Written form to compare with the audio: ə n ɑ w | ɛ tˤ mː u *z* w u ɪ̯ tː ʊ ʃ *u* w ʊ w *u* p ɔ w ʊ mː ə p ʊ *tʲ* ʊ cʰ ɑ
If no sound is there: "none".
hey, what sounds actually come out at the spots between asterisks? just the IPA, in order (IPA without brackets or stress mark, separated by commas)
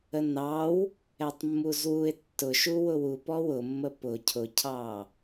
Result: z, u, u, cʰ